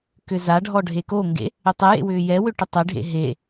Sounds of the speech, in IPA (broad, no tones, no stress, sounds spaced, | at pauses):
k ʏ z a ɖʱ ɔ ɖʱ e k o ŋ ɡ ḛ | ʏ tˤ e j ḛ w ʏː j ɛ w ʏ ʈ ʏ tˤ e ɖʱ ḛ ɦ e